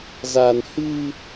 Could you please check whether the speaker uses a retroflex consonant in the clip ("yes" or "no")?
no